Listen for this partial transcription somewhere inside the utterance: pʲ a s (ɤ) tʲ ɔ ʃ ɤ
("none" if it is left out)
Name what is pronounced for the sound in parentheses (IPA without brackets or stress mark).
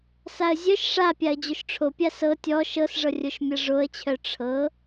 ɤ